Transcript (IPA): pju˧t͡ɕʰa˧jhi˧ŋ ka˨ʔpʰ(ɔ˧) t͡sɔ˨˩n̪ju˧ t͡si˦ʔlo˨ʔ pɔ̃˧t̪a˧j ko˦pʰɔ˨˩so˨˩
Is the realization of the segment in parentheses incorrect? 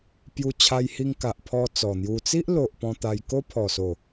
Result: no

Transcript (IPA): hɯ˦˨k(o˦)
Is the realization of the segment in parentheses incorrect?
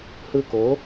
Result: yes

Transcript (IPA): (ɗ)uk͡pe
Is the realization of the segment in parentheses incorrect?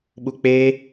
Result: yes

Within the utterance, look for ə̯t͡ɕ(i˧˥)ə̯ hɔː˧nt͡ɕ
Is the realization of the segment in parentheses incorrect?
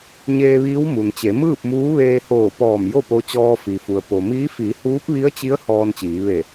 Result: no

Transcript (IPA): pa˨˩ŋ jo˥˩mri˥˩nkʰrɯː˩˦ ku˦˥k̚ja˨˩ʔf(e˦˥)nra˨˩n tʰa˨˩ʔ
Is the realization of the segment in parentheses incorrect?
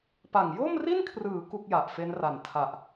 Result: no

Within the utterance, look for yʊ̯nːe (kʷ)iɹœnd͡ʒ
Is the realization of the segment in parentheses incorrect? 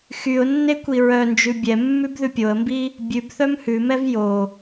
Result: no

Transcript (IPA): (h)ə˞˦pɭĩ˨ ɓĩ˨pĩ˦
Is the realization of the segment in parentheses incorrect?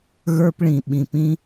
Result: yes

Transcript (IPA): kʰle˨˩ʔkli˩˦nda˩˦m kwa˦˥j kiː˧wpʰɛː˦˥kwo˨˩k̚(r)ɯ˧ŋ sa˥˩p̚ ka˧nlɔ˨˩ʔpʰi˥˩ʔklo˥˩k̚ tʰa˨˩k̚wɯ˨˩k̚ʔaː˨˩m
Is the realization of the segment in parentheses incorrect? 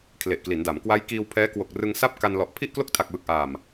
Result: no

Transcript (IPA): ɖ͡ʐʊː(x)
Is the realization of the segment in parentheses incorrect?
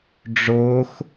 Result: no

